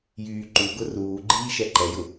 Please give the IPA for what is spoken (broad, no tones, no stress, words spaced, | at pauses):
jyːǃuɡʊ ruːɡ͡ǃiː ʃɛǃɛjʊ